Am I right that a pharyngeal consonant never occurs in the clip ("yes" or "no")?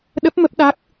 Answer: yes